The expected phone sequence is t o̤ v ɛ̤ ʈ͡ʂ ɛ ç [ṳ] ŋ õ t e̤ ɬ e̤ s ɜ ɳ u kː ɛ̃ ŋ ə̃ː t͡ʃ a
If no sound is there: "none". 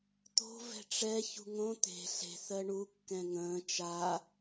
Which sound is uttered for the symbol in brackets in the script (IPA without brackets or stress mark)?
ṳ